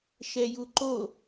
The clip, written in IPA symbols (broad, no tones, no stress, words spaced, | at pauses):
ʃɛjuǃo